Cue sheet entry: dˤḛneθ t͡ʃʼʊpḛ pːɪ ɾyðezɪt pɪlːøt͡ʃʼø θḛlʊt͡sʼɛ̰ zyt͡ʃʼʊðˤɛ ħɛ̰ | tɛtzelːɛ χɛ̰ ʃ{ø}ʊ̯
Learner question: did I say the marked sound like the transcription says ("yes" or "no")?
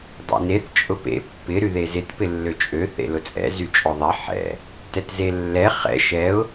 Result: no